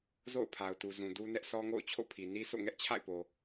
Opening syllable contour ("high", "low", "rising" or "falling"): falling